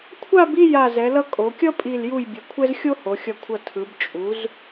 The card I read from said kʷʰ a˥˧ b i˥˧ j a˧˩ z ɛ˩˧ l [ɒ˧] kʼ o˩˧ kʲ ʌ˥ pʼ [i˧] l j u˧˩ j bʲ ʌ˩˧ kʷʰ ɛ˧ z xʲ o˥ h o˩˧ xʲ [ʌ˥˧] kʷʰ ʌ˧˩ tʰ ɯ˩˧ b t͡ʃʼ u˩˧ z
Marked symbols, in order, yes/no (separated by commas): no, no, no